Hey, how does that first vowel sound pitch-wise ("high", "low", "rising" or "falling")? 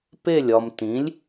falling